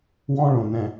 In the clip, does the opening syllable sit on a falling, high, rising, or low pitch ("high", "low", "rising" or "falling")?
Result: high